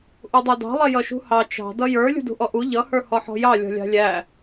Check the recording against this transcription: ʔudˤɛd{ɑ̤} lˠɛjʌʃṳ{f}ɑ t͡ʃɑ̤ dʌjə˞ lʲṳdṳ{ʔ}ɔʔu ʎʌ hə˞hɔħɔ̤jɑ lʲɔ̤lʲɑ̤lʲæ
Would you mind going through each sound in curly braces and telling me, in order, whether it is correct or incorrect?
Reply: correct, incorrect: h, correct

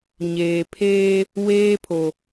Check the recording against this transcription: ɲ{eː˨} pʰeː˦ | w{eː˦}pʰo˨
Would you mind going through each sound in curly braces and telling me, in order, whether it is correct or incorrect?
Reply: correct, correct

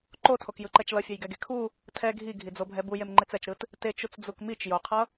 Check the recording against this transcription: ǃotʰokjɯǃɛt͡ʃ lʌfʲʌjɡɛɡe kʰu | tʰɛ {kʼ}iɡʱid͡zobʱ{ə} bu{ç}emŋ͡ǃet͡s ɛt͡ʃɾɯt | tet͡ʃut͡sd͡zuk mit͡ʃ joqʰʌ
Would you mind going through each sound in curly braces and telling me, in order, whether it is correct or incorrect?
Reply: incorrect: ɡʱ, incorrect: ɛ, incorrect: j

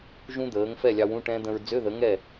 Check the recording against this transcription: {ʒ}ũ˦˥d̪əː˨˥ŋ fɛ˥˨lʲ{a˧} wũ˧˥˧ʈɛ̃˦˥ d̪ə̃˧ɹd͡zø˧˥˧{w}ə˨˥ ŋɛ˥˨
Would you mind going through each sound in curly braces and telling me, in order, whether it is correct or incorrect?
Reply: correct, incorrect: ɑ˧, incorrect: ð

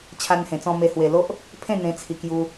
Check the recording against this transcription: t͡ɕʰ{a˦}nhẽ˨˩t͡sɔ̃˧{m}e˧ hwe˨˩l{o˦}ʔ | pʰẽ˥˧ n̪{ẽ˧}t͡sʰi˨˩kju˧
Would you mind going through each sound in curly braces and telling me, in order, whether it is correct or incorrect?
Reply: incorrect: a˧, correct, correct, correct

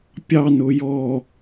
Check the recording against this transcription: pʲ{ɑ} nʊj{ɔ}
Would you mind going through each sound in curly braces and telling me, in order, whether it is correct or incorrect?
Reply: correct, correct

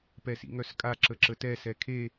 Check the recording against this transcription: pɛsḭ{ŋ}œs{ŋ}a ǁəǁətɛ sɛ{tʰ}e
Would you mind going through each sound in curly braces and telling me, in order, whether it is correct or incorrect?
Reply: correct, incorrect: kʼ, incorrect: kʰ

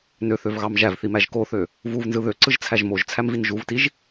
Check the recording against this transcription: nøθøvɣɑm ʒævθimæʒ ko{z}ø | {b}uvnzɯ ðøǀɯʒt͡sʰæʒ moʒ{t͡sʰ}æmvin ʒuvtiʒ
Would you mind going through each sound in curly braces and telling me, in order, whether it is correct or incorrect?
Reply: incorrect: θ, incorrect: v, correct

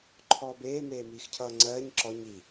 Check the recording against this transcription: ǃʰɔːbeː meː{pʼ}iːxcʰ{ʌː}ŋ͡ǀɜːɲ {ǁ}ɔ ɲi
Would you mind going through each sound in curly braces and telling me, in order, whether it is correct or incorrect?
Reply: incorrect: m, correct, correct

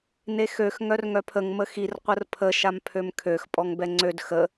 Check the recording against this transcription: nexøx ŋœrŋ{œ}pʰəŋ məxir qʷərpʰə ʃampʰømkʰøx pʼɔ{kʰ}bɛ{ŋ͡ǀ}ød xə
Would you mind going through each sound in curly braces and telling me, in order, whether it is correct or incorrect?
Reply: correct, incorrect: ŋ, correct

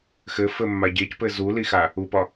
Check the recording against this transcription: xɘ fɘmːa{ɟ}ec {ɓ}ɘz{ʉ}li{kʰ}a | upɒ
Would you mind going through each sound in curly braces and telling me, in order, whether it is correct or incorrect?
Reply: correct, incorrect: p, incorrect: u, incorrect: x

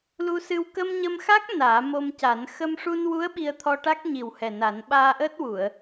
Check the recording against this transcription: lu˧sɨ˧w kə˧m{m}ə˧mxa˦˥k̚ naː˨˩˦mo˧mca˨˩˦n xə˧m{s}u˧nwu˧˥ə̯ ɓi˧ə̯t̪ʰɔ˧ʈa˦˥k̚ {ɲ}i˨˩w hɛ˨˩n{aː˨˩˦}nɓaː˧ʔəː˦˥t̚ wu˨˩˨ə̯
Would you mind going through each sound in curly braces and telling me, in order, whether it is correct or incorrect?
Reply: incorrect: ɲ, incorrect: ʂ, correct, incorrect: a˨˩˦

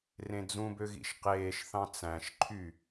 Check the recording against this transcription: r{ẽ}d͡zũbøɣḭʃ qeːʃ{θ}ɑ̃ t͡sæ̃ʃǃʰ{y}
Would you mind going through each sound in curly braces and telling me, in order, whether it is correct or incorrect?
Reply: correct, correct, correct

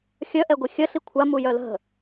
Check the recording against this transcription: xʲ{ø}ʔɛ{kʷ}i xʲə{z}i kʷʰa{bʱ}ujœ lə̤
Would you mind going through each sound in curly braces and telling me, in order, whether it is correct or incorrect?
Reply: incorrect: œ, incorrect: ɡʷ, incorrect: ɬ, incorrect: m

